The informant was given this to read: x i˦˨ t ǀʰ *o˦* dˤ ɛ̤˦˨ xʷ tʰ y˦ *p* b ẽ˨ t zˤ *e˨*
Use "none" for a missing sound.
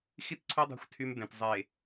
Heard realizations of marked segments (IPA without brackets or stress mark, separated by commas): o˦, m, e˨